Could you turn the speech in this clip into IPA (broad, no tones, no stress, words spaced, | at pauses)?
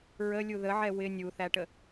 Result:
ɹəlʲu ðəʕɛ wɪ nʲuθæʈə